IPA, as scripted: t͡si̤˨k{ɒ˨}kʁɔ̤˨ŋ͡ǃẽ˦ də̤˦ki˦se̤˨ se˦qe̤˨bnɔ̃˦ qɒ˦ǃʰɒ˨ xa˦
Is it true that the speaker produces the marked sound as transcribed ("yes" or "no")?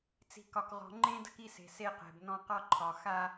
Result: yes